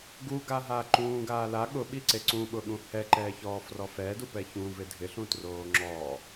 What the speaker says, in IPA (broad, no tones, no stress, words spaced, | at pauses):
ɡuɡaɦaː ǃũːɡaː la ɠʊɓiǀe ǀũɓʊɠũ hɛǃɛːçɔːfrɔ fɛːdupɛ çũvɪ dʱɪɬũtroː ŋ͡ǁɔː